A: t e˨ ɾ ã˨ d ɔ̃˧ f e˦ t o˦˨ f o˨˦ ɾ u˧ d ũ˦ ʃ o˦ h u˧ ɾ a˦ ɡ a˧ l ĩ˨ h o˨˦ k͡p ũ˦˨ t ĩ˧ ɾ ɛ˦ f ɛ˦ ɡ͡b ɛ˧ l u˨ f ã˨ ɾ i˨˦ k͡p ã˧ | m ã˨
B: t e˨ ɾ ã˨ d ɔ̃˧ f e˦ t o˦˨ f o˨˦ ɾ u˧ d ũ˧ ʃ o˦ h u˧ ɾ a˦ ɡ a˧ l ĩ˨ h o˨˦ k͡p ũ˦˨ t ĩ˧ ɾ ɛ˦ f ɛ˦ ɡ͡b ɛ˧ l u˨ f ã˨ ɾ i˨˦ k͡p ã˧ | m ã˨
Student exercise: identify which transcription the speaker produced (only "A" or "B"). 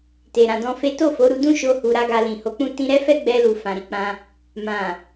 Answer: A